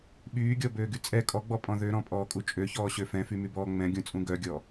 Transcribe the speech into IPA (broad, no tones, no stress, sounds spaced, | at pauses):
ɓ yː ɡʲ ɔ b øː ɡ y t͡sʼ ɛ kʼ ɔ ɡ͡b ɔ pʼ ɔ̃ ð ø ɾ ɔ̃ pʼ ɔː kʼ u t͡ʃʼ ø ç ɔː ɕ ø f ɛ̃ f y m y b ɔː ŋ͡m ɛ̃ ɡʲ ũ t͡sʼ ũ ɡ œ ɡʲ ɔ